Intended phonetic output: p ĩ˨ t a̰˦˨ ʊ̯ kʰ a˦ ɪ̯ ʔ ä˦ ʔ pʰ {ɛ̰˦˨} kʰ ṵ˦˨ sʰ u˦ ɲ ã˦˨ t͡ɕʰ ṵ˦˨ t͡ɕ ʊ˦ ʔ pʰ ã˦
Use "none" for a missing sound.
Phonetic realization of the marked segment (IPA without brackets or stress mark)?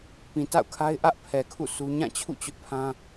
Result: ɛ˨